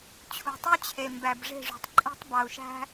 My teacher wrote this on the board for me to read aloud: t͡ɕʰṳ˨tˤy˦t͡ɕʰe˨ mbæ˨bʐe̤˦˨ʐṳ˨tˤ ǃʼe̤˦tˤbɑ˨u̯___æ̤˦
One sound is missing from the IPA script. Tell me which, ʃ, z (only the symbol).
ʃ